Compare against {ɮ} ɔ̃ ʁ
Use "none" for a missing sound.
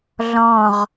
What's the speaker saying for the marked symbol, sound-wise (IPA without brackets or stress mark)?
ɮ